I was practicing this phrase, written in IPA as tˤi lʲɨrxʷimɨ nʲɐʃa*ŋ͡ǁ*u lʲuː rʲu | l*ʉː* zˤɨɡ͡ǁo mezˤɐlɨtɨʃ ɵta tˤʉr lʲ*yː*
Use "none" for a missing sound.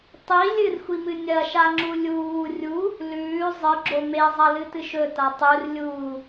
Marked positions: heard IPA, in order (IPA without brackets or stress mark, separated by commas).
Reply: ŋ͡ǁ, ʉː, uː